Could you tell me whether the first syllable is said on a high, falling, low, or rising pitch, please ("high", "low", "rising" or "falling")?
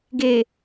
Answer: low